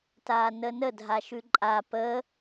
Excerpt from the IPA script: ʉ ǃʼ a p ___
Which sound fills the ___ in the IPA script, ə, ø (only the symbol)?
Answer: ə